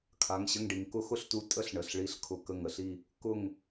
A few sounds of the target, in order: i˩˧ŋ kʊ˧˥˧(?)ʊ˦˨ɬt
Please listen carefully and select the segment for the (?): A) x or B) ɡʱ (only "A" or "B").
A